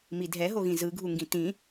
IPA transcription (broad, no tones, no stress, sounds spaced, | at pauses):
m i dʱ ɛ ɦ o ɣ ĩ z ɯ ɡʱ u ŋ ɡ ĩ t ĩ